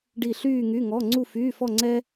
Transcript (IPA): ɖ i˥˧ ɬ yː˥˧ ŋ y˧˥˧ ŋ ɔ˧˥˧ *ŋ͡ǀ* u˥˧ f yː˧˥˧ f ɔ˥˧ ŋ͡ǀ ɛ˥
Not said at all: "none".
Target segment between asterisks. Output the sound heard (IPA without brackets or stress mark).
ŋ͡ǀ